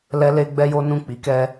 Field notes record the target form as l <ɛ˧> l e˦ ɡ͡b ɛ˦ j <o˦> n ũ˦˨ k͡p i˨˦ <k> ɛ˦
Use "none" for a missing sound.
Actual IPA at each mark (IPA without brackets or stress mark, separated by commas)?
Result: ɛ˦, o˦, k